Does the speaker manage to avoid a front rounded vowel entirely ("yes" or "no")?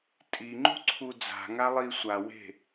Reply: yes